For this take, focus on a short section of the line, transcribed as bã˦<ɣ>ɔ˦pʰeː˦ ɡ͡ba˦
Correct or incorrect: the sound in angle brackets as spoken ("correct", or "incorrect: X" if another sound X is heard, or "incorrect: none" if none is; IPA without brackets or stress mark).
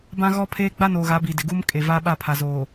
correct